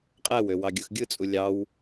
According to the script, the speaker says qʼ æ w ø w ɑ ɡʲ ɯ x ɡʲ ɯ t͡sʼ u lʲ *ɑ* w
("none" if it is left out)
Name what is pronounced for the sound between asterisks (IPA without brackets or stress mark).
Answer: ɑ